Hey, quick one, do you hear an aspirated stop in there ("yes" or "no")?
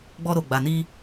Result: no